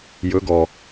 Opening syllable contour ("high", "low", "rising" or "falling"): rising